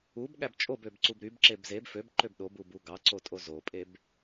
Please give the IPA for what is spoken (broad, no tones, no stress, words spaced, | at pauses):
ub ɠæbt͡ʃʼobøb ǀubɾybǁeb zeb føbǃøb ɗobub uɡɑǀo tʼozopʼeb